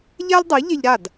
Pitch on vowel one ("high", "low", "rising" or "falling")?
high